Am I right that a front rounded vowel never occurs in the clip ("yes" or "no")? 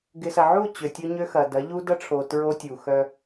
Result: no